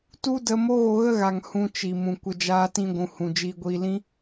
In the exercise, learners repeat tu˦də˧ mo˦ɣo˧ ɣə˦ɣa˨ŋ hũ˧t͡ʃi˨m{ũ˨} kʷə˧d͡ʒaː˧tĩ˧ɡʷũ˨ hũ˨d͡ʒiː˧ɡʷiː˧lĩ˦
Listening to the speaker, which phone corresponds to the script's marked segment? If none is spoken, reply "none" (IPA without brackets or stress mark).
ũ˨